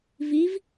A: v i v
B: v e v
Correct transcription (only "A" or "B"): A